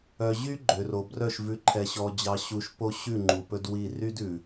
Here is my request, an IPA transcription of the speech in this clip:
œ˨ ʑ y˦ ɡ͡ǃ ø˨ r o˨ b r œ˦˨ ʃ v ʉ˨ ǃʰ ɛ˨ ɕ ɔ˨ d͡ʑ ɑ˨ ɕ u˨ ʃ p o˦ ɕ ʉ˦˨ ŋ͡ǃ u˨ p ɵ˦ d w i˦˨ r y˦ d ʉ˨

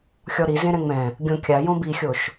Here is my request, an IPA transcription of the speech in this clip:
xʲ ɔ ɾ i z ẽ ɾ ɛ̃ ŋ͡m ɛ̃ | ɡʲ õ kʲ a j õ b i xʲ o ʃ

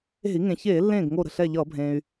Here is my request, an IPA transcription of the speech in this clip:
e̤˧˩˧ i̯ ŋ ẽ˩ ç eː˧˩˧ lː ẽː˧˩ ɡ ŋ o˧˩ ɾ ə̤˧˩ ɬ ɛ˧˩ ʎ ʌː˧˩˧ bʱ ẽː˩ y̯

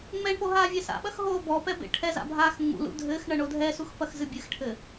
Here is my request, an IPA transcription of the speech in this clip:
ŋ͡m ɛ ɳ p o ɦ aː vʲ ɛ s a̰ ɓ ɐ x ɦ oː b ɔ p ɛ b ḛ ʈʰ ɛ z a̰ bʱ aː x ŋ͡m ṵ l ṵ dʱ ɘː x ɳ ɐ ɳ o dʱ ɛ s u x p ɐ x z ɨ bʲ ɨ x ʈʰ ɘ

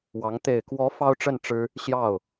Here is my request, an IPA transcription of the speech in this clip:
w ɑ˧˥ ŋ t̪ e˨˩ ɪ̯ k w ɔ˧˥ f ɑ˥ ʊ̯ ʈ͡ʂ ə˥˩ n ʈ͡ʂ ɻ̩˥ | ɕ j ɑ˥˩ ʊ̯

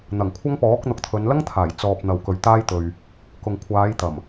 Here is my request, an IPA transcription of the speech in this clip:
n̪ ɐ˨˩ ŋ kʷʰ ɐ˥ ŋ p ɔː˨˥ k̚ n̪ ʊ˨˥ k̚ t̪ʰ ɵ˨˧ n l ɐ˥ ŋ t̪ʰ aː˨˩ j t͡s ɔː˧ p̚ n̪ ɐ˨ w k ɵ˨ ɥ t̪ aː˥ j t̪ ɵ˨ ɥ | k ʊ˨ ŋ kʷʰ aː˨˧ j t̪ ɐ˨˩ m

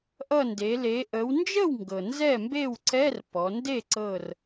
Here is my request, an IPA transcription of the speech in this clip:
ʔ ʌ˧˩ n d e˩˧ l e˩˧ ʔ ə˩˧ w n d͡ʒ ə˥˩ w ŋ ɡ ɤ˩ n z ɛ˥˩ m b e˥˩ w ǀ ɛ˧˥˧ r p ɔ˩˧ n d e˥˩ ǀ ɤ˧˩ r

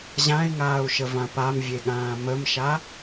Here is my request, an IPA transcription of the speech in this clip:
ʑ ã i̯ ŋ aː u̯ ʃ ə v ã p a m vʲ e ɠ ãː m ə m ʃ a

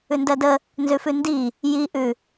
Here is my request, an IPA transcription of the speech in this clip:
ʉ n d ɜ d ə | n z ʉ f ʉ n d i | j i ʔ ʉ

